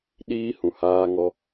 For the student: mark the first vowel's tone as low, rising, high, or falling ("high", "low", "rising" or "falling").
high